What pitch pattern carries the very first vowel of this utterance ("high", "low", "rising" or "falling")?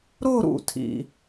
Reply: falling